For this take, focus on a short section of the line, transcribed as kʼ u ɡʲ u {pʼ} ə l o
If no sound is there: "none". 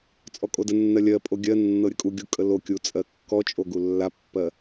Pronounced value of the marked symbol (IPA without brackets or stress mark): kʼ